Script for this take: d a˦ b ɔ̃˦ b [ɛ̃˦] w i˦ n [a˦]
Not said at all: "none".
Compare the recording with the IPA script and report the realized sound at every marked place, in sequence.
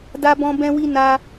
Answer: ɛ̃˦, a˦

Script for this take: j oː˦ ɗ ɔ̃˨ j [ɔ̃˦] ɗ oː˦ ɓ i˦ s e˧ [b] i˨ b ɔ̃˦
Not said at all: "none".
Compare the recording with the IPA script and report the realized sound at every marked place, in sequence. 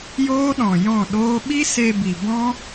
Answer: ɔ̃˦˨, b

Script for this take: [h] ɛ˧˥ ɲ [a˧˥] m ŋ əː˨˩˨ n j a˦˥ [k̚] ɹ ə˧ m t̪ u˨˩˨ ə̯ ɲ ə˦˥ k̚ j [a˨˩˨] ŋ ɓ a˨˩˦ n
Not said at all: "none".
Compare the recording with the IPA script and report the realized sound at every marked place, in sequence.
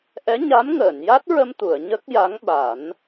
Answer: ʔ, a˧˥, t̚, a˧˥

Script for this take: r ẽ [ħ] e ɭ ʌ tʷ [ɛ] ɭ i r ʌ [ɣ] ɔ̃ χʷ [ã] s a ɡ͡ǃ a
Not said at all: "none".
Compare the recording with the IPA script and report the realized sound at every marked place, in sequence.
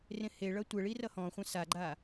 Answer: h, ɛ, h, ã

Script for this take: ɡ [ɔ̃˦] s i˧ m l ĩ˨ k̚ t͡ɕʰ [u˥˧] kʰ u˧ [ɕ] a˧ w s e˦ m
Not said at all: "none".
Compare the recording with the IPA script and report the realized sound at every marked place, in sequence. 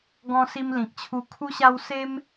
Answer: ɔ̃˧, u˧, ɕ

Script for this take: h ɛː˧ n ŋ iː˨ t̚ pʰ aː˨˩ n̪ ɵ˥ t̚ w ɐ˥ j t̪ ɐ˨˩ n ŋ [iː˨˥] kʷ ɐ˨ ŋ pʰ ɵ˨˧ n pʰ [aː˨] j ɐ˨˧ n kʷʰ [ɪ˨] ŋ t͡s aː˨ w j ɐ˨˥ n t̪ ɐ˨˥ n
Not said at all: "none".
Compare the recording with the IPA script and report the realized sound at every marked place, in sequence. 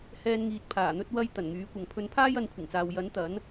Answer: yː˨˥, aː˥, ɪ˨˩

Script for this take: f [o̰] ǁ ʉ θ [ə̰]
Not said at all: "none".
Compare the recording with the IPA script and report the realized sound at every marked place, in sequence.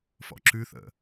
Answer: ɔ̰, ə̰

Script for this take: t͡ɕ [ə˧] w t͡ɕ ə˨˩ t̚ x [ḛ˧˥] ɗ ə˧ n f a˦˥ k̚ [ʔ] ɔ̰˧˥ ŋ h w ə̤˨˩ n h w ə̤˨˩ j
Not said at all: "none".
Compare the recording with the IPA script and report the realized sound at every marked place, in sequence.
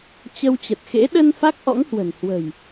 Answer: ə˧, ḛ˧˥, ʔ

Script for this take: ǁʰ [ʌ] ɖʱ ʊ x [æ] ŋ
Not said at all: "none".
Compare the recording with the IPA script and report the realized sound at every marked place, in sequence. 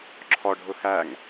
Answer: ɔ, æ

